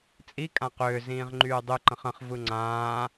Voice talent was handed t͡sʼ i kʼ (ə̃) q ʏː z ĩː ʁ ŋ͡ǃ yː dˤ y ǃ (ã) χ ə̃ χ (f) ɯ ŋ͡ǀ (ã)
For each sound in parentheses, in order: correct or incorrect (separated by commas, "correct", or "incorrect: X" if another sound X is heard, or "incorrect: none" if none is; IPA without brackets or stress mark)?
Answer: incorrect: ã, incorrect: ə̃, incorrect: v, incorrect: ãː